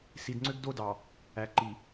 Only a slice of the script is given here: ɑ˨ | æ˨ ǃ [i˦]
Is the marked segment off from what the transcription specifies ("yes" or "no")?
yes